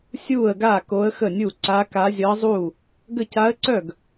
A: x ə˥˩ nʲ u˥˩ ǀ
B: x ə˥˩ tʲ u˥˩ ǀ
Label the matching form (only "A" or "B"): A